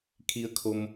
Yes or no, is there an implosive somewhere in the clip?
no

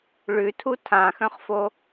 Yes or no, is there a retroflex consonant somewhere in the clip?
yes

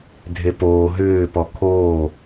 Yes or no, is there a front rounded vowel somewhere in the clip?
yes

